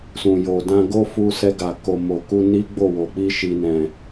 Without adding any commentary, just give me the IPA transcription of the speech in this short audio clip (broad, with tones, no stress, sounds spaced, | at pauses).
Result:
s ũ˨ j o˨ d ã˧ ɡ o˦ f u˧ s ɛ˧ ɡ a˨ k o˨ m o˨ k u˧ n i˦ ɡ͡b o˦˨ w o˨ k͡p i˧ ʃ i˨ n ɛ̃˨